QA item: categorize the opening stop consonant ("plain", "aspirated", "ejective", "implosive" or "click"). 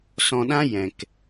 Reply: implosive